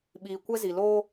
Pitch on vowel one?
low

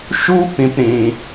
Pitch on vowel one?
high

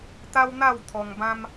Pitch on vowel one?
high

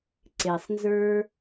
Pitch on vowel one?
low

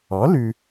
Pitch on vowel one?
rising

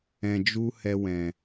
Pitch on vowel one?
low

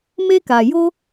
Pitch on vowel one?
high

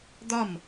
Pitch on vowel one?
falling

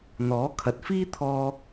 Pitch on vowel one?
rising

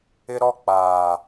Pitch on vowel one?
high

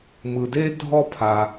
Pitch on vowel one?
low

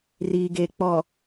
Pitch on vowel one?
low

